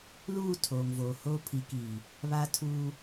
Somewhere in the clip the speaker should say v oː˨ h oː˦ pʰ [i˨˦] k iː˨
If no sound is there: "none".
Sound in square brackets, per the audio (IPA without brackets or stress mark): i˨˦